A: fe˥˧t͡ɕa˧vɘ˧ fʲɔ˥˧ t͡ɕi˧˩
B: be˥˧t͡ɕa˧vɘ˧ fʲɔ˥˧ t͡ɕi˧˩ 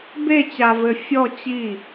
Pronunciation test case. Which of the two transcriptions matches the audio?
B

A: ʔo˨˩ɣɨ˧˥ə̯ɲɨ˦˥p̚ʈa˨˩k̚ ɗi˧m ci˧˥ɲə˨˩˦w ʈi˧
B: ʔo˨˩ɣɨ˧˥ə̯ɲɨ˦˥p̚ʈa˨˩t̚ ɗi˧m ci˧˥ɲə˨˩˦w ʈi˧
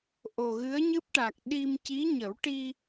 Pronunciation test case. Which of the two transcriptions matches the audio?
A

